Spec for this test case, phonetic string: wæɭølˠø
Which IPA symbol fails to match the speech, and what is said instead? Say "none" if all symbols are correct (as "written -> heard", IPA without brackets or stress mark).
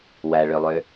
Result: none